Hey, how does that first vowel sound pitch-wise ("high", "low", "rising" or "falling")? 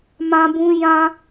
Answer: high